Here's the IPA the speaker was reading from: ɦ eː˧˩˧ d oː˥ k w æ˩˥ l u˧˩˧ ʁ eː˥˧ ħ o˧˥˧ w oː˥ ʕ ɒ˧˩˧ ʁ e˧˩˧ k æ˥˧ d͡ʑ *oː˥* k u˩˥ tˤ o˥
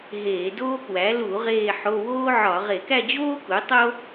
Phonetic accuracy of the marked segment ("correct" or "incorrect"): correct